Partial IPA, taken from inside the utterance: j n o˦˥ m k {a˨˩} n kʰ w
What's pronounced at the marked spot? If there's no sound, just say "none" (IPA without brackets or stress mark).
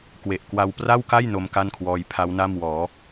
a˥˩